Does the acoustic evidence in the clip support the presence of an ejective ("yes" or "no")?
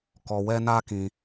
no